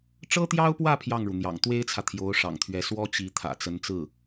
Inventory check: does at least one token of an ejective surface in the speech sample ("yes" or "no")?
no